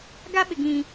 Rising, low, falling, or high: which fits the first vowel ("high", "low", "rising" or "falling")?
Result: high